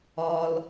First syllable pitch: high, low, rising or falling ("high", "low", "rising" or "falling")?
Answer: low